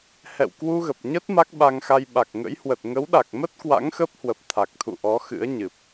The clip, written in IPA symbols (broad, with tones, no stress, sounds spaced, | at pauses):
h ɛ̰˧˨ w k w u˧ ɣ ə˨˩ p̚ ɲ ə˦˥ t̚ m a˦˥ k̚ ɓ a˧ ŋ x a˧ j ɓ a˨˩ k̚ ŋ ə̰˧˥ j h w ə˨˩ t̚ ŋ ə˨˦ w ɗ a˨˩ k̚ m ə˦˥ t̚ k w a̰˧˥ ŋ x ə˦˥ p̚ h w ə˨˩ p̚ t̪ʰ a˨˩ k̚ t̪ʰ ṵ˧˨ ʔ ɔ˨˦ x ɨ̰˧˥ ə̯ ɲ ɨ˨˩ p̚